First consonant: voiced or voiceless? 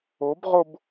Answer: voiced